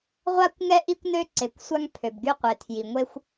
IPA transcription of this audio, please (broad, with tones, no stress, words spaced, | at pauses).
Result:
ʁʷa˥kʷŋɛ˥ ʔi˥kʷnø˥ ǀe˩kʷ sʷa˥ŋ pʰø˩bɡy˥qʷe˩ tʰji˩ ŋʷe˥xʷ